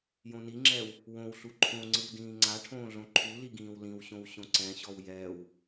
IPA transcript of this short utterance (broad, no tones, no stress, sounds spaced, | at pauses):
j õ n i ŋ͡ǁ ɛː w | w õ w ɬ u ǃʰ õ ŋ͡ǀ ɯ w d ĩː ŋ͡ǀ a ʈʰ õː ɮ õ ǃʰ u l i ɡ ĩː w l ĩ w ɕ õ w ɕ õ ǀ ɛ̃ ɕ ɔ w j ɛː w